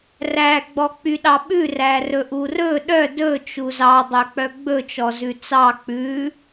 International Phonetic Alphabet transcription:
r æ ɡ͡b ɔ k͡p y ɗ ɑ ɓ ʉ r æ r ɵ ʔ u r ɵ ɗ œ d ɵ t͡ʃ u z ɑ dˤ œ k͡p œ ɡ͡b ɵ t͡ʃ ɔ z ʉ t͡s ɑ k͡p ʉ

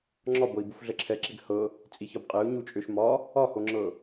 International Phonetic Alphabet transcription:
ŋ͡ǁ ɒ b ɤ i̯ b u f ɮ ə ǁʰ ɛ ǁ e ɡ h ɤ | t͡sʼ i ç ɒ b qʼ e u̯ ɲ u t͡ʃʼ ø ʃ m ɒ | ɒ h o ŋ͡ǁ ɤ

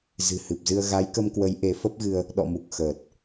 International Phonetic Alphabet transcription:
z ɨ̤˨˩ h ɨ˨˩ p̚ z ɨ˧ ə̯ ɣ a˨˦ j k ə˧ m k w ə˨˦ j ʔ e˨˦ f ə˦˥ p̚ ɣ ɨ˧ ə̯ | ɗ ɔ̰˧˨ m u˨˩ k̚ x əː˨˩ t̚

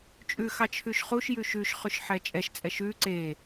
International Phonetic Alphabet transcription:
t͡ʃʼ ʉ x ɑ t͡ʃʰ ʉ ʃ χ u ʃ j ʉ ʃ ʉ ʃ χ ʉ ʃ ħ ɛ t͡ʃʼ ɛ ʃ t͡sʼ ɛ ʃ ʉ ǀ e

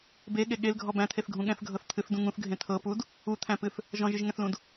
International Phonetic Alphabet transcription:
b e ɠ e ɠ e l ɡʱ ɔ b æ̃ t̪ʰ e θ ɡʱ ũ ɠ ɛ̃ θ ɡʱ ɤ θ t̪ʰ ɨ θ d ũ ŋ ũ θ ɡʱ ẽ t̪ʰ ɤ p u d | u t̪ʰ æ̃ p ɨ θ | ʒ ɔ̃ ʒ ɨ ʒ ŋ ɛ̃ θ l ũ d

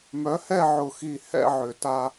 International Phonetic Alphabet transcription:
m œ˨˥ h ɛ˥˧ ʕ ʊ˧˩ x i˧˩ h ɛ̰˥˧ ʕ ʏ˨˩˦ t a˧

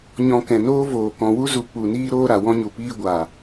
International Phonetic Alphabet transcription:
ɲ ɔ̃˧ k ɛ̃˨ n oː˦ v oː˨ k ɔ̃˨ w u˦ z u˨ k͡p u˨ n iː˦ ɾ oː˦ ɾ a˨ w ɔ̃˦ ɲ u˨ p iː˦ ɡʷ a˨

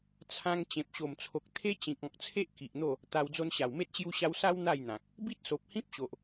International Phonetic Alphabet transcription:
t͡sʰ ã˦ ŋ t͡ɕ ẽ˨ p̚ ɕ o˨˩ m t͡sʰ o˨ k̚ t̪ʰ e˦ t͡ɕ ĩ˨ k̚ ɔ̃˨ k̚ t͡sʰ e˦ ʔ k i˨ ʔ n̪ o˥˧ | t̪ a˧ w d͡z o˧ n ɕ a˨˩ w m e˦ t̚ ɕ j u˧ ɕ a˧ w s a˦ w n̪ a˥˧ j n̪ ã˨ k̚ | b i˦ t̚ s o˨ p̚ h ĩ˦ p̚ ɕ o˨ ʔ

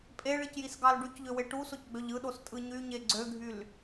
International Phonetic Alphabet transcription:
pʼ e ɭ i c j i s ɡ ɑ l ɖ y c ʎ ø w e ʈ u s o c ɡ͡b ø ʎ ɯ ɗ o s tʼ ɯ ɲ y ɲ e ɡ͡ǀ ø ɡʱ y l

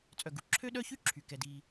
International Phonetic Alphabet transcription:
t͡sʼ œ˨ ɡ u˩ ǁʰ ø˥ ɗ œ˥ ç y˥ ǁʰ y˩ k ɛ˩ d iː˨

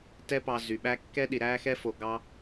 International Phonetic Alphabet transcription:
t ɛ˦ p ɑ˧ z y˨ ɓ æ˦ kː ɛ˦ ɗ i˨ ɾ æ˦ x ɛ˦ f o˧ ɡ ɑ˦

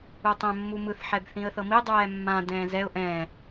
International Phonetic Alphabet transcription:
u tˤ ɛ̃ mː u m ɯ θ ħ ɛ b θ ĩ ə̯ θ ɤ m i dˤ ɛː mː ã d ɛ̃ː z ɛ ʊ̯ ʔ ɛ̃ː

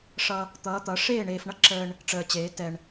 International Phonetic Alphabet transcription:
ʂ ʌ˦ | t̪ ʌː˨˦ t̪ ʌ˨˦ ʂ eː˦˨ ɳ eː˨ f ɳ ʌ˦ ǁ əː˦ ɳ | ʈ͡ʂ əː˨ t͡ɕ eː˨˦ t ɛ˨ ɳ

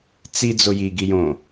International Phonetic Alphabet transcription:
t͡s i d͡z o j i ɡ i j õ

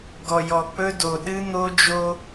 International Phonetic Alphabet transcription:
ɡ ɔ˨ j ɔ˨ k͡p ɵ˦ d o˨ ɗ ɨ˦ n̪ o˦ d͡ʒ o˦

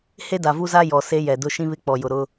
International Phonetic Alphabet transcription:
h e˦ d a˨ v u˦ z a˦ j ɔ˨ s e˦ j ɛ˨ d ʊ˦ ʃ ĩ˦ β ɪ˦ k͡p ɔ˨ j ʊ˨ ɾ ʊ˦

